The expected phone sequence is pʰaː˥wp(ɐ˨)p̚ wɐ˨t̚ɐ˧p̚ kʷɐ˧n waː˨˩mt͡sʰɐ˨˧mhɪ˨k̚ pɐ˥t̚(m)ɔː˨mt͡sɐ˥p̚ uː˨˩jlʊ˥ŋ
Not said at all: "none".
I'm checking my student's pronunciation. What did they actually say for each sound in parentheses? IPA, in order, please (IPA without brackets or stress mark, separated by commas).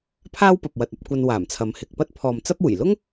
ɐ˨, pʰ